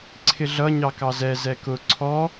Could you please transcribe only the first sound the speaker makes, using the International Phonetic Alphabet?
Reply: ǀʰ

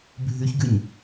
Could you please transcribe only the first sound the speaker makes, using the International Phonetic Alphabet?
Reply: bʱ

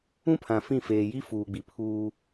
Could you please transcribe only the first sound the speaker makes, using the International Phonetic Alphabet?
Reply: ũ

